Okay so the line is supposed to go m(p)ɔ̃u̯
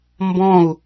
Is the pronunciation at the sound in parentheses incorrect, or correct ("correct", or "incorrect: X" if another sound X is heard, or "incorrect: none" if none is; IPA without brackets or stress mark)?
incorrect: b